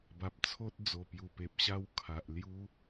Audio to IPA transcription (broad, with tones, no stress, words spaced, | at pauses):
ba˨p̚t͡sʰo˦t̚ d͡zo˨˩pju˨˩ pe˨p̚ɕa˥˧w kʰa˨ʔlju˦